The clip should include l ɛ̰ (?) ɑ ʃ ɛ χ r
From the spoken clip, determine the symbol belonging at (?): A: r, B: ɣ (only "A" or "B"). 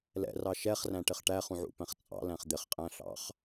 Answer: A